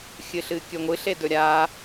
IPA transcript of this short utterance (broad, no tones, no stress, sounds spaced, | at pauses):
xʲ ɨ ɬ ɨ kʲ ɵ ŋʷ ɨ ɬ e d ɵ ɾʲ a